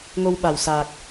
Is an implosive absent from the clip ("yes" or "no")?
no